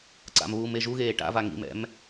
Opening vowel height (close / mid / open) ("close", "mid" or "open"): open